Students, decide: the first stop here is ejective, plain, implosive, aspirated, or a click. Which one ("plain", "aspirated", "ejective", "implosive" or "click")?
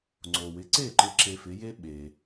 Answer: click